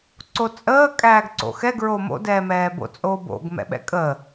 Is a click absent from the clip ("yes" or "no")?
no